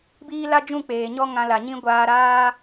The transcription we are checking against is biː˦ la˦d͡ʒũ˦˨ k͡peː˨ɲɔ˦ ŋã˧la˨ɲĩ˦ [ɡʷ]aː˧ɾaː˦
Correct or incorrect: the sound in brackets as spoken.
correct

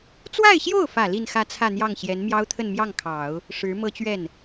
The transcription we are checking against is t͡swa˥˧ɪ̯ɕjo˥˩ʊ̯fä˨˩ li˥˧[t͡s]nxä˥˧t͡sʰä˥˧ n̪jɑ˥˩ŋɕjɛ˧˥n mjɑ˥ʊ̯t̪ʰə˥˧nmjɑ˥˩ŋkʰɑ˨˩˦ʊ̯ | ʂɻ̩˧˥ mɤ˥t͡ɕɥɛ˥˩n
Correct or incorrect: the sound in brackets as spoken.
incorrect: none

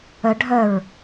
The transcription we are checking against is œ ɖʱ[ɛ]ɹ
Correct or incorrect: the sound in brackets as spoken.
incorrect: œ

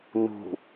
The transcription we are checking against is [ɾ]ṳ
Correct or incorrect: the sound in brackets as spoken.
incorrect: n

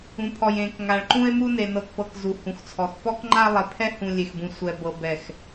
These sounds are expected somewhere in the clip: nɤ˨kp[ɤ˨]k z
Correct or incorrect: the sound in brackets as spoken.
correct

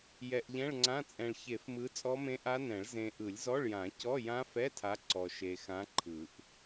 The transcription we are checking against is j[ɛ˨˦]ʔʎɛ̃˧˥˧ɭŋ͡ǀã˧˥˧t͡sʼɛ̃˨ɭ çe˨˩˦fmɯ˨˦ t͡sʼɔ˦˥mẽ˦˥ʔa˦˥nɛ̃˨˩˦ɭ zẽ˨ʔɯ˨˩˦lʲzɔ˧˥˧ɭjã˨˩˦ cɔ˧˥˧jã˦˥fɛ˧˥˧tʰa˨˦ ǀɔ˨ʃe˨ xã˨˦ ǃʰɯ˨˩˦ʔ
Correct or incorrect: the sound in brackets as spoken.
incorrect: ɛ˨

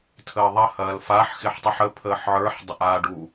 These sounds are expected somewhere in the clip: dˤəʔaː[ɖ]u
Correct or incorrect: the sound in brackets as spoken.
correct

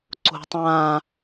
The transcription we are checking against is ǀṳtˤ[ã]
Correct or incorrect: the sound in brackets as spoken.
correct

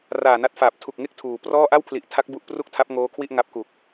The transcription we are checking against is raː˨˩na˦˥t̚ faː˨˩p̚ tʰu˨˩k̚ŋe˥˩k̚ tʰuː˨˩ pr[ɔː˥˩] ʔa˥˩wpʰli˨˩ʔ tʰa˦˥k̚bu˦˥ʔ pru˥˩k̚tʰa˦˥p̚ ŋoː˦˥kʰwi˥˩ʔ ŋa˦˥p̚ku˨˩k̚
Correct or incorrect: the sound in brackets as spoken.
correct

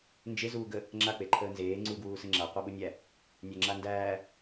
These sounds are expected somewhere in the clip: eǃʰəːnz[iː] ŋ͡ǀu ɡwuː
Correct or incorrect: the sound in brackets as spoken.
incorrect: eː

